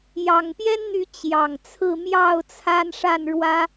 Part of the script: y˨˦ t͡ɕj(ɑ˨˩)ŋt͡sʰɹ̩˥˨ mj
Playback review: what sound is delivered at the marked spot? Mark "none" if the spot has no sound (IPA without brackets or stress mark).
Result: ɑ˨˩